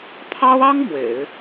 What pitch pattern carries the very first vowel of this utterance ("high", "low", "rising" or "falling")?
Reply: high